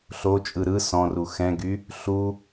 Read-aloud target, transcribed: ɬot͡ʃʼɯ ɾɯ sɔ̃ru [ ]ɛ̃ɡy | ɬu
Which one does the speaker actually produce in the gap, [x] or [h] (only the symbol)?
x